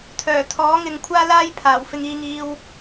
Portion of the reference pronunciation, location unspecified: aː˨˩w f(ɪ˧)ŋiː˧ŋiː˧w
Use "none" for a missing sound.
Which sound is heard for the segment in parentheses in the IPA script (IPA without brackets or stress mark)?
ɪ˧